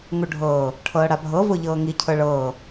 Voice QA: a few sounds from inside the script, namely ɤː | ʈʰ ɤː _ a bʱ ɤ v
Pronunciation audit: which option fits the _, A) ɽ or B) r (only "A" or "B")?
A